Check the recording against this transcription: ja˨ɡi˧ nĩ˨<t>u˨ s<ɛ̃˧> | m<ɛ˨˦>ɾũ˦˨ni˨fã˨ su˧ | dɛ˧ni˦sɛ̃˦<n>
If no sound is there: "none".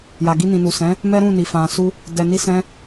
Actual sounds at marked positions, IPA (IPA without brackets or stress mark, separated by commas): n, ɛ̃˨˦, ɛ˦, none